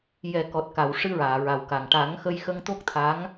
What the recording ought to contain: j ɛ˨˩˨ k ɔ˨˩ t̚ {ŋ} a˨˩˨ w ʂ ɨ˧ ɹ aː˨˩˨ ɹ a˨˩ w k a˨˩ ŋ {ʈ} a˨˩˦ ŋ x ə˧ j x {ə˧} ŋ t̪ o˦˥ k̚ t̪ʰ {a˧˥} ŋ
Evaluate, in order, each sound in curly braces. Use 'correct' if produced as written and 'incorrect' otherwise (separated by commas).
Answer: incorrect, correct, correct, correct